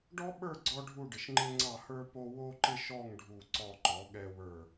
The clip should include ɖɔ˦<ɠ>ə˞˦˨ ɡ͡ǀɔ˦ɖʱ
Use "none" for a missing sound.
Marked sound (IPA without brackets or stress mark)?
ɓ